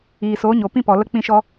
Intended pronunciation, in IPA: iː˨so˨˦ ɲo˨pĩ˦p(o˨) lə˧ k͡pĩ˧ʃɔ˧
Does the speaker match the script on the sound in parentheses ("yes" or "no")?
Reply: no